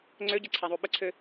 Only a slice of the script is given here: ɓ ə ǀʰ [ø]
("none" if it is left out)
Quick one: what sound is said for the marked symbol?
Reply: ø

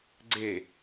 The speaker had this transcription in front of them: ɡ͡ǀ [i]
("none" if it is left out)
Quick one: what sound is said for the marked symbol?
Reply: e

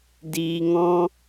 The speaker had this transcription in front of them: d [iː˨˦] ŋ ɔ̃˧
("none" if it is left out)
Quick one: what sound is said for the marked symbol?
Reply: iː˨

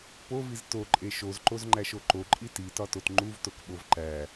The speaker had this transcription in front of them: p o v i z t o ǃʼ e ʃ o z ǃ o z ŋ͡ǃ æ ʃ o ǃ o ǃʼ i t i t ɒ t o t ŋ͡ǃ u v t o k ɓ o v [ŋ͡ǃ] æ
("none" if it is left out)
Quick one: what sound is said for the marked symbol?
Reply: ǃ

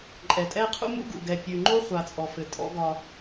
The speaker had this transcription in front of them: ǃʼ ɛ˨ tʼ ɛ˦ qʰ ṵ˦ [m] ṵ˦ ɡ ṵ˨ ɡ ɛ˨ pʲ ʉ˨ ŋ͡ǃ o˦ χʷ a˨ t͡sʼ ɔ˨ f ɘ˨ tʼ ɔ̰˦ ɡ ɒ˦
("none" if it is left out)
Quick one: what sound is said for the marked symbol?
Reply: m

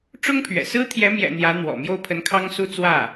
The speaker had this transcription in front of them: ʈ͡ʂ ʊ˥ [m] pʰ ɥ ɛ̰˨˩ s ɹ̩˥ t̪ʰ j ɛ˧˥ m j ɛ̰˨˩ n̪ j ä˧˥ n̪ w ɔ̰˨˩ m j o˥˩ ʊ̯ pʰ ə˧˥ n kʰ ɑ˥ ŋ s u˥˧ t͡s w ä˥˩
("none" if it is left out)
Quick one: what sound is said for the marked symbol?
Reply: ŋ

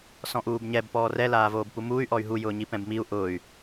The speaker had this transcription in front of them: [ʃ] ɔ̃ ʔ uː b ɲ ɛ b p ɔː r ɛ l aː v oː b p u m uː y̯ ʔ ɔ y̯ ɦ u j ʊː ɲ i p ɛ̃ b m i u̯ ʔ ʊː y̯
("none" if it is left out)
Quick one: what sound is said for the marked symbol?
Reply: s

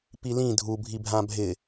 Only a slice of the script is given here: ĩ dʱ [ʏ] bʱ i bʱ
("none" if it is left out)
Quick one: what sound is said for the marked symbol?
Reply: u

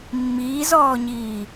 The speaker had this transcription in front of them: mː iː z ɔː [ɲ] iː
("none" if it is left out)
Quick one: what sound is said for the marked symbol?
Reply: ɲ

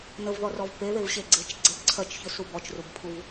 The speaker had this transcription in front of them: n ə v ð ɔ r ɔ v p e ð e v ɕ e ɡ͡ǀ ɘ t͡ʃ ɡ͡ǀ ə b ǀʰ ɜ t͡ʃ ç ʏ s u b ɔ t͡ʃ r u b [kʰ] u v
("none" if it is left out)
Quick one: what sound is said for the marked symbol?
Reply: pʰ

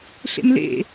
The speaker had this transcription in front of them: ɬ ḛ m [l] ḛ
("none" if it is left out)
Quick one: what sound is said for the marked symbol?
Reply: l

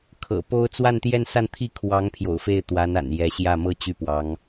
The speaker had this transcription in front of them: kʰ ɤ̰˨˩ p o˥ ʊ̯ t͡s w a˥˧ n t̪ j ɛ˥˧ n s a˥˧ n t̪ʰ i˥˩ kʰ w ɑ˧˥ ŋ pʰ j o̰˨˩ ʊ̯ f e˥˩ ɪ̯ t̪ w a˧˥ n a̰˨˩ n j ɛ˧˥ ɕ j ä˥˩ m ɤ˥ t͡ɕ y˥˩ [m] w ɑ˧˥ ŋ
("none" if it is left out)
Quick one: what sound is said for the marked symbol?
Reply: p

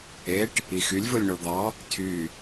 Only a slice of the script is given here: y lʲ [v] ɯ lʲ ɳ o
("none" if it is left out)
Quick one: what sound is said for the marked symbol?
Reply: v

